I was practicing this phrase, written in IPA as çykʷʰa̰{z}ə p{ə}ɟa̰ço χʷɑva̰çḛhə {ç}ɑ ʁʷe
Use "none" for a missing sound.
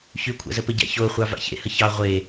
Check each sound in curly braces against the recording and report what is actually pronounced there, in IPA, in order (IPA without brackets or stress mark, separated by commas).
z, ə, ç